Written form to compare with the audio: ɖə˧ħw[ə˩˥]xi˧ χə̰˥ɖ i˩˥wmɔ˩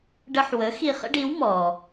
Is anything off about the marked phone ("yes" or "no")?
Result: no